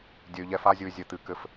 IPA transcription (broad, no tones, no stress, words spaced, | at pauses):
dʲɘy̯ ʎɛf azʲuy̯ zʲɘ t̪ɨ kɘf